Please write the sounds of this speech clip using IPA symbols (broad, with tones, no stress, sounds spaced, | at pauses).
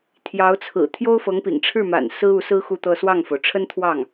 t̪ʰ j ɑ˧˥ ʊ̯ t͡sʰ ɹ̩˨˩ t̪ʰ j o˥ ʊ̯ f ɤ˧˥ ŋ p ḭ˨˩ ŋ ʈ͡ʂʰ ɻ̩˥˩ m a̰˨˩ n s ɹ̩˥ u˧˥ s ɹ̩˥ x u˥˧ t̪ ɤ˥˧ s w ɑ˥˩ ŋ f o˩ ʊ̯ ʈ͡ʂʰ ə˥ n t̪ʰ w ɑ˥˩ ŋ